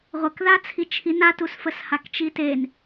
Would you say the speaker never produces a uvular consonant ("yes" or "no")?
no